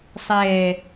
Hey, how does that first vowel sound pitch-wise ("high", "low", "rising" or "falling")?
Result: low